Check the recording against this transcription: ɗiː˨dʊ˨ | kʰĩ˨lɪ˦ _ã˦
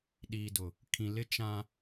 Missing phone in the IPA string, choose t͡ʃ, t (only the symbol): t͡ʃ